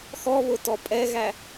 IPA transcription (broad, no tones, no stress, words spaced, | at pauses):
xɔβʊtɔ pʼɛɣæ